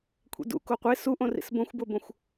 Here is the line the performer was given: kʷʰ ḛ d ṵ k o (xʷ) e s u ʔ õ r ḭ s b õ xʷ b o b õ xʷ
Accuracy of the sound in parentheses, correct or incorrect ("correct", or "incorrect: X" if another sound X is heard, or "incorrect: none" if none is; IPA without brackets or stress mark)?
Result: incorrect: qʷ